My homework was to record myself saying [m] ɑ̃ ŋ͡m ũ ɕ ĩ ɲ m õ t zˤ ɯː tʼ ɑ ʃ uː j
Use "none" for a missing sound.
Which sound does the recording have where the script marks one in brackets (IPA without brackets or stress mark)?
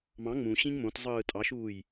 m